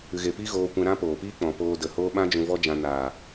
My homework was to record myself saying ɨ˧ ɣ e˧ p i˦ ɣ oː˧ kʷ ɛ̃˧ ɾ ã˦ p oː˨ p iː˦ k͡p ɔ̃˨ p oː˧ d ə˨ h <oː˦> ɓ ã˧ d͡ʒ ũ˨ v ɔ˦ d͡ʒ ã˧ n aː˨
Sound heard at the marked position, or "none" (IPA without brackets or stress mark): oː˧